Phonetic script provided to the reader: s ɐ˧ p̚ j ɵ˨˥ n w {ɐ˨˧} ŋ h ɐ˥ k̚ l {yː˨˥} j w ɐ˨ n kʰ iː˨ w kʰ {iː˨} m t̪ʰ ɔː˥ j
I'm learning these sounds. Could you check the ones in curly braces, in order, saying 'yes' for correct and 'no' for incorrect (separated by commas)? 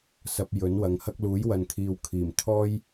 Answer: yes, no, no